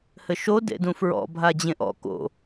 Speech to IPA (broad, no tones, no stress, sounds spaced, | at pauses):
h ɘ ʃ o d ḛ d ũ f ɹ ɔ̰ bʱ a d͡ʑ ẽ ʔ ɔ̰ k o̰